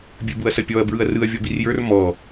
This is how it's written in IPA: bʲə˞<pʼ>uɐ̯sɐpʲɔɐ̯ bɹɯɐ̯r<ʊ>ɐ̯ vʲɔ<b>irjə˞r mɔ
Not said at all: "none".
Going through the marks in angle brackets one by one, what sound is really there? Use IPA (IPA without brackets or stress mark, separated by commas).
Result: b, ɯ, b